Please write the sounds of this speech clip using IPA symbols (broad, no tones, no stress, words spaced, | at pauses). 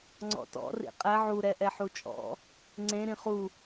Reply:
ŋ͡ǀɔ̰tɔ̰ rḭqʼɛ ʕuɾɛ ʔɛħut͡ʃʼɔ̰ | ŋ͡ǀẽ ɾĩχu